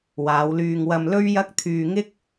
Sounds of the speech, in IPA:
w aː˨˧ w l yː˧ ŋ w ɐ˧ m l ɵ˥ ɥ j ɐ˥ k̚ t̪ʰ yː˧ ŋ ɪ˥ k̚

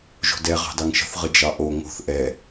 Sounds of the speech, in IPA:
ʒ o̤ d ɛ ʁ ɑ̤ d ɑ ŋ ʃ ə̤ θ ʁ ə d͡ʒ ɑ ʔ o ŋ o̤ θ ʔ ɛ

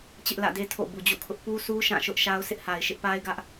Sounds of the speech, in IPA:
t͡ɕ ɪ˦ ʔ l ä̰˦˨ d e˦ tʰ o̰˦˨ b u˨ d͡ʑ ṵ˦˨ kʰ ʊ˦ ʔ p u˦ sʰ u˦ ʃ ã˦˨ ʃ ʊ˦ ʔ ʃ a˦ ʊ̯ sʰ ɪ˦ ʔ h a˨ ɪ̯ ʃ ɪ˦ ʔ p a˦ ɪ̯ ɡ ä˦ ʔ

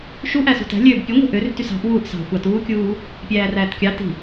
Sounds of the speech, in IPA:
ʃ u ʔ æ s ṳ t æ̤ lʲ øː b pʲ u ŋʷ i̤ ʔ ø r t y s ɑ̤ ʔ w uː ʔ s ɑ̤ xʷ ɑ t uː kʲ uː | pʲ æː r æː t kʲ ɑ t i̤

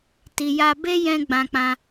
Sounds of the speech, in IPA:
t i˧ j a˦ b e˦ j ɛ̃˦ ɡ͡b ã˧ k͡p ã˧

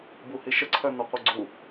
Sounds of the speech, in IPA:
b u h i ʃ ə ǀʰ œ n ɔ qʷ œ ɡ͡ǀ u

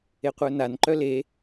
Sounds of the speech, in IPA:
e qʷ œ n a n ǃ œ l e

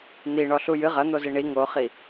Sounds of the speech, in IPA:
n̪ i ɳ ɔ ɬ u j ɨ ʁ ɐ n̪ o z i ɳ i ŋ o χ i

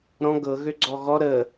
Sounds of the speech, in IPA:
ɾ ɔ̃ ɡ ɤ ɣ ø ɡ͡ǀ ɔ ɣ ɔ ɾ ə

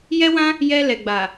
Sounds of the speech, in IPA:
j ɛ˦ w ã˦ | j ɛ˧ l ɛ˨ ɡ͡b a˨

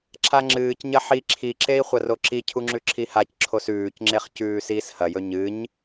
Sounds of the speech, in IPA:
ǁʰ a ŋ͡ǁ ɨː c ɲ ɐ ħ i ǁʰ i ǁ e i̯ χʷ ɐ r o ǁ i cʰ u ŋ͡ǁ ʉ ǁʰ i h a c ǁʰ o s ʉː c ŋ͡ǁ e χ c ʉː s iː s h ɐ j ɵ ɲ ɨ ɲ

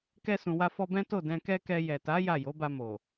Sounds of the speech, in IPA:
k ɛ˧ s ũ˨ w a˧ f ɔ˧ b ɛ̃˦ t o˦˨ d ɛ̃˧ k ɛ˦ k ɛ˧ j ɛ˨ t a˨˦ j a˦˨ j o˨˦ b a˧ m o˨

